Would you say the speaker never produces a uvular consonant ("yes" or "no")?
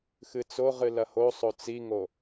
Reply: no